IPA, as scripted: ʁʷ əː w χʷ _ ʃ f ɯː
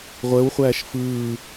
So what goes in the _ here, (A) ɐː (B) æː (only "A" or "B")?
B